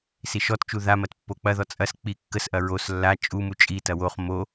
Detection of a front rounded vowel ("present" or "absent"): absent